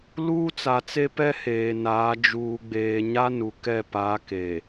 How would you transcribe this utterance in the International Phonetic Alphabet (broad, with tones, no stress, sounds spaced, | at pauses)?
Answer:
l uː˦ t͡s a˨ t͡s e˦ p ɛ˦ h eː˨ n aː˨˦ d͡ʒ uː˨ ɡ͡b eː˨ ɲ a˦ n u˨ k ɛ˦˨ p a˨˦ k e˨